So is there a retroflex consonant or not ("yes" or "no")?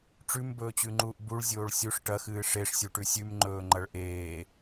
yes